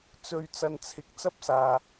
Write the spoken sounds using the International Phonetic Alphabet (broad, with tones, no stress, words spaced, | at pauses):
t͡sɵ˧ɥ t͡sɐ˧nt͡sʰɪ˨˥k̚ t͡sɐ˥p̚saː˧